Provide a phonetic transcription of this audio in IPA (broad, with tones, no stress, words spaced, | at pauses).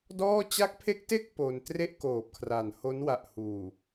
dɔː˥˩ t͡ɕa˦˥k̚pʰe˦˥k̚te˥˩k̚ po˧n tre˥˩ʔkoː˨˩p̚kʰra˨˩nho˦˥n wa˨˩ʔhuː˨˩